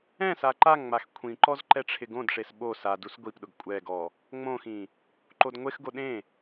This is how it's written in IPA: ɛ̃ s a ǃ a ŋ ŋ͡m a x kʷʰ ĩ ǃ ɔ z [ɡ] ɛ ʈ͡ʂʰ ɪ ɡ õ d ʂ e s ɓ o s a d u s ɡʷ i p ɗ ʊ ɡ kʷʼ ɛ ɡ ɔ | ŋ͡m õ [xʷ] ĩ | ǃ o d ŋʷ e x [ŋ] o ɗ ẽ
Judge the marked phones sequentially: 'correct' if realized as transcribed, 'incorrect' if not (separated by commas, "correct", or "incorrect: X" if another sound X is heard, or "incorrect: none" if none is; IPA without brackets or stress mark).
incorrect: ǃ, incorrect: x, incorrect: ɡ